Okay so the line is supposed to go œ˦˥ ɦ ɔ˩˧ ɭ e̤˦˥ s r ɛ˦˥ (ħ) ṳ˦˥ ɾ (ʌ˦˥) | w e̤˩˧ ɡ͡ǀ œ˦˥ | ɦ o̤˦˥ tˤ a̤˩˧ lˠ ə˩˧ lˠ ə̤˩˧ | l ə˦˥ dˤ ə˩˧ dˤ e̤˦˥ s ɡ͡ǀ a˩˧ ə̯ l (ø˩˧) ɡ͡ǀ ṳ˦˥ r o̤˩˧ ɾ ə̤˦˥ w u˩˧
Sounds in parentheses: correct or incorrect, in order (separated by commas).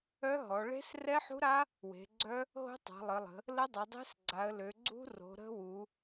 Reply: correct, incorrect, correct